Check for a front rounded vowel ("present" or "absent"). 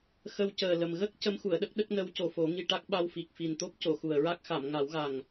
absent